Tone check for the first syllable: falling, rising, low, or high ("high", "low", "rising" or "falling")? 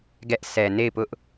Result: high